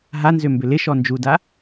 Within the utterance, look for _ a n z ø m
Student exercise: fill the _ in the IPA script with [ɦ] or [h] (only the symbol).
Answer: ɦ